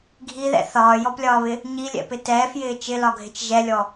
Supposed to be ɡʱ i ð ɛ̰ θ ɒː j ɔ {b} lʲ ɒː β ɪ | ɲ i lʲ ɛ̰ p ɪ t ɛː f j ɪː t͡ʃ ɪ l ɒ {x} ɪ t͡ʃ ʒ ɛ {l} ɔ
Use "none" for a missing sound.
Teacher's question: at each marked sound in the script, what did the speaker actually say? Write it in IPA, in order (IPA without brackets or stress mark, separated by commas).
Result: p, ɡʱ, lʲ